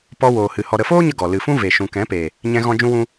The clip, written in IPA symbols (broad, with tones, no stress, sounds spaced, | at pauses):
p ɔ˧ w oː˨ h ɨ˨ h ɔ˨ ɾ ə˨ f oː˦ ɲ ə˧ ɡ ɔ˨ l ɨ˨ f ũ˦ v e˨ ʃ ũ˨ k ɛ̃˨˦ p e˨ | ɲ ɛ̃˧ ɣ ɔ̃˧ d͡ʒ ũ˧ w ũ˧